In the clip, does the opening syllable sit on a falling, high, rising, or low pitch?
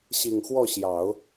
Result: low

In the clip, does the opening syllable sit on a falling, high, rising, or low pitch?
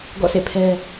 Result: falling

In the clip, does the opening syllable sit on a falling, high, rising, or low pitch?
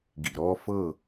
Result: low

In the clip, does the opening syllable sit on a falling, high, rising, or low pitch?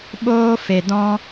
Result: high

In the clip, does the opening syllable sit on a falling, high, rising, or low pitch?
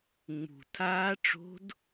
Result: low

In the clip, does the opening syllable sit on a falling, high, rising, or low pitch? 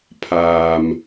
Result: low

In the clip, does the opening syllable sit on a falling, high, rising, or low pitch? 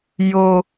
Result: high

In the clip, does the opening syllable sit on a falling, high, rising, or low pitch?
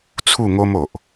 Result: falling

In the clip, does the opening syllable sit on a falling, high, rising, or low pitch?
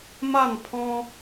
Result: falling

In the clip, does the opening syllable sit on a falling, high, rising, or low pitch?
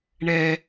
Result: high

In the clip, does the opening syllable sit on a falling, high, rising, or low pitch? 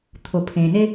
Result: low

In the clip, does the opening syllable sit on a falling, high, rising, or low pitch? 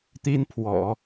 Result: high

